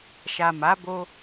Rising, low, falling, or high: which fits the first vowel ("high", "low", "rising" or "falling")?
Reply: low